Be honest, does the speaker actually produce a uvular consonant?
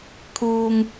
no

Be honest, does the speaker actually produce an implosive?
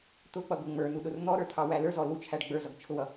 yes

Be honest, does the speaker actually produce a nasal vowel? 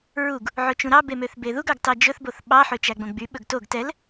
yes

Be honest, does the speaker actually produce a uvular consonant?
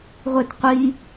yes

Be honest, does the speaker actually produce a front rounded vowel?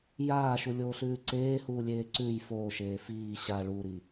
no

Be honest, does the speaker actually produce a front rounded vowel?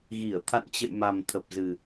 no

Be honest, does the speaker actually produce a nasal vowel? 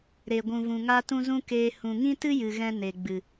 yes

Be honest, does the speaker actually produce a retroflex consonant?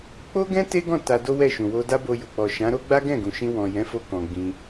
no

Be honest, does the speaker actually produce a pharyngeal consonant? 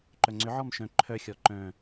yes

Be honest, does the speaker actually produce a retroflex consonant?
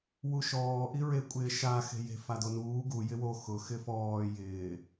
no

